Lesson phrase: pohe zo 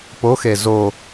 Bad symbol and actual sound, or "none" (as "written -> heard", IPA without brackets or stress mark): h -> x